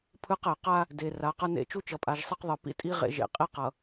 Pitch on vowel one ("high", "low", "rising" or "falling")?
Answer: high